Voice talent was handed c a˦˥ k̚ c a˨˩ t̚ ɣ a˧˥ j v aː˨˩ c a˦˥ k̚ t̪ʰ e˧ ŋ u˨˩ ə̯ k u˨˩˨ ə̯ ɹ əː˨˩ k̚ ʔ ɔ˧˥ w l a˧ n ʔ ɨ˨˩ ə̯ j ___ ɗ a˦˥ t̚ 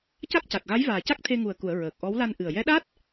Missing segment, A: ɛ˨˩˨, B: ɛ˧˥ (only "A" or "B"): B